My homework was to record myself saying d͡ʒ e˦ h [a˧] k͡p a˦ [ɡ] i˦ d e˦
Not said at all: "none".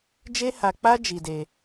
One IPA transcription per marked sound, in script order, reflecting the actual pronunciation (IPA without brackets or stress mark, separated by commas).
a˧, d͡ʒ